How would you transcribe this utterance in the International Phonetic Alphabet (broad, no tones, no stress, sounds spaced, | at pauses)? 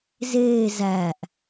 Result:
z eː z æ ʔ